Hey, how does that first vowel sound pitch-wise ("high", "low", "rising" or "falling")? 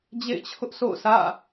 falling